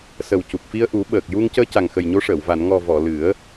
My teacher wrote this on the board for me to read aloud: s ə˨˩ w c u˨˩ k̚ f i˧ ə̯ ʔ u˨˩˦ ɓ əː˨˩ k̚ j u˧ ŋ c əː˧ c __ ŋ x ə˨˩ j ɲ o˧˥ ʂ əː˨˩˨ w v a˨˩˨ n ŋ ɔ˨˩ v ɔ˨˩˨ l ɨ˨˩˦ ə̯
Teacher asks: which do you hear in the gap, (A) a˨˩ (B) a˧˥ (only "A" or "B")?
A